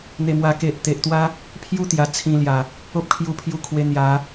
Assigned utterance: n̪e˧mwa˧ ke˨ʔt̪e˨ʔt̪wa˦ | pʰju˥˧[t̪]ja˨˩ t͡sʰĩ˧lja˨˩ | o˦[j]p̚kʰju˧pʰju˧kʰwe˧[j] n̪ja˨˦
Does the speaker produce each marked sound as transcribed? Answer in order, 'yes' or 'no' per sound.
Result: yes, no, no

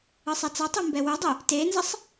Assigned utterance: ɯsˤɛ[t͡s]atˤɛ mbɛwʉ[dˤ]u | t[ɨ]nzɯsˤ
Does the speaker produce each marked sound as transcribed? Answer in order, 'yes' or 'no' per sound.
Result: yes, yes, no

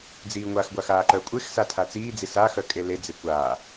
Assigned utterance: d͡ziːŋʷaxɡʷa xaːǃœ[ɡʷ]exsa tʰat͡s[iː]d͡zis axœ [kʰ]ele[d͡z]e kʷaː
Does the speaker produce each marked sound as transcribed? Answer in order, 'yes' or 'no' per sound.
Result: no, yes, no, yes

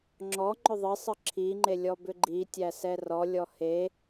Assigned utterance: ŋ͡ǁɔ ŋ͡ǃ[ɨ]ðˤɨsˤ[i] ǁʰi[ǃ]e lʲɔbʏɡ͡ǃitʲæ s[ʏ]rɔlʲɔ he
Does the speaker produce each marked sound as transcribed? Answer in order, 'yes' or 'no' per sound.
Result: no, no, no, no

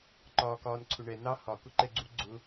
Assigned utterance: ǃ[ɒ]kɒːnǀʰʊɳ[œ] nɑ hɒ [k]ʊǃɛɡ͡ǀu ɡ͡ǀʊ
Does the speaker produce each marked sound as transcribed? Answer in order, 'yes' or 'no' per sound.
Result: no, no, yes

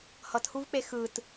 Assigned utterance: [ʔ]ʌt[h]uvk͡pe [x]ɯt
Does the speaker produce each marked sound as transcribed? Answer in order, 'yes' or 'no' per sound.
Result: no, yes, yes

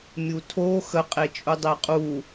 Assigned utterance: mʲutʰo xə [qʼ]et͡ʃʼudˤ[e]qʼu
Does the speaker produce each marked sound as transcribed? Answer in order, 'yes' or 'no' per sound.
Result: yes, yes

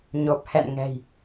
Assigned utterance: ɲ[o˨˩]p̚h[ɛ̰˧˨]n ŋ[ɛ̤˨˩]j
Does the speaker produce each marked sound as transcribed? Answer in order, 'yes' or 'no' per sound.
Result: yes, yes, yes

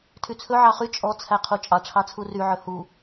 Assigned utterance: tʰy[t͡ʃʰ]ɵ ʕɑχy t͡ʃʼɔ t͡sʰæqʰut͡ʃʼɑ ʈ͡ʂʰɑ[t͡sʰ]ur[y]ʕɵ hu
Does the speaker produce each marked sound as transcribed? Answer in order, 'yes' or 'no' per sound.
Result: no, yes, yes

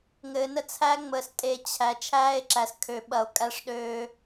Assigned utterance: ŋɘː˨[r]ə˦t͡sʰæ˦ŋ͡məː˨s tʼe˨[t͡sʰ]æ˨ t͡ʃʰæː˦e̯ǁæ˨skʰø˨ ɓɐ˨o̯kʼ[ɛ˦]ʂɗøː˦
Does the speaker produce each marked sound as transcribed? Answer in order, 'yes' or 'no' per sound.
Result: no, no, no

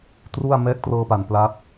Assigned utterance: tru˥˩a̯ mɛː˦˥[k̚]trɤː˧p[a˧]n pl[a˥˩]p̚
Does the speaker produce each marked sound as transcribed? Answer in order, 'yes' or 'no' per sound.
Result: yes, no, no

